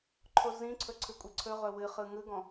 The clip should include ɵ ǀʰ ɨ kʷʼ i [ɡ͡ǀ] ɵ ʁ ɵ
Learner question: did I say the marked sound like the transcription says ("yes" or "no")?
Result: no